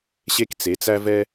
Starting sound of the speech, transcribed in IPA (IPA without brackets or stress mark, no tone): ɕ